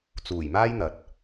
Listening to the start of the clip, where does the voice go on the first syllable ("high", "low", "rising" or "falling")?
low